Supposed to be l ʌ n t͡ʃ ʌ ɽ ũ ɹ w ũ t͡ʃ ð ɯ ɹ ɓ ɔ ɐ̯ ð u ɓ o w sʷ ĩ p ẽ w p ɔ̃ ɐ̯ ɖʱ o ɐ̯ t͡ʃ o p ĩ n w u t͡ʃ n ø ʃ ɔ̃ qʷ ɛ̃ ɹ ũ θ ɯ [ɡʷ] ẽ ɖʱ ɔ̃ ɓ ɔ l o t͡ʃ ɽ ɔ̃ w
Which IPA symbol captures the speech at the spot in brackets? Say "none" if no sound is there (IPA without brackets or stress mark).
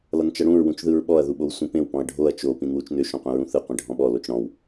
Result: qʷ